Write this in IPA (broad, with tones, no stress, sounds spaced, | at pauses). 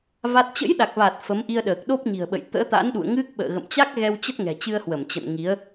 v a˦˥ t̚ t͡ɕ ə̰˧˥ j ɗ a˨˩ k̚ v a˨˩ t̚ f ə˨˦ m ʔ i˧ ə̯ ɗ əː˨˩ k̚ ɗ o˦˥ p̚ ɲ i̤˨˩ ə̯ ɓ ə̰˧˨ j t̪ ə̰ː˧˥ t̪ a̰˧˥ n ɗ ṵ˧˨ ə̯ ŋ ɨ˦˥ k̚ ɓ ə̰ː˧˨ ɣ ə̰˧˨ m t͡ɕ a˦˥ k̚ ɣ ɛ˧ w t͡ɕ ə˦˥ t̚ ŋ ɛ̤˨˩ t͡ɕ ɨ˧ ə̯ h w ə˧˩ m t͡ɕ ə̰˧˨ n ŋ i˨˦ ə̯